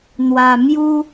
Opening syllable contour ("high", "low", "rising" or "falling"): low